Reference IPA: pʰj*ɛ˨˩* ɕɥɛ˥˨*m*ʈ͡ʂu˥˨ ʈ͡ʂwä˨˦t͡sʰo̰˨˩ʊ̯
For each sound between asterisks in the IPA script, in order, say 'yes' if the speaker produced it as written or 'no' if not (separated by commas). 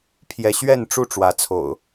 no, no